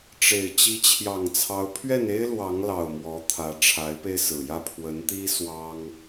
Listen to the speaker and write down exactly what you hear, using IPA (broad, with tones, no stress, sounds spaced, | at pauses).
ʈ͡ʂ e˨˩ ɪ̯ t͡ɕ i˨˦ t͡ɕʰ j ɑ˨˩ ŋ t͡sʰ ɑ˨˦ ʊ̯ pʰ ɥ ɛ˥˨ n e˦ ɪ̯ l w ɑ˨˦ ŋ l ɑ˨˩ ʊ̯ m w ɔ˨˦ t̪ʰ ä˨˦ ʈ͡ʂʰ a˨˦ ɪ̯ p e˧ ɪ̯ s ɹ̩˨˩ j ä˥˨ pʰ w ə˨˦ n t̪ i˦ s w ɑ˦ ŋ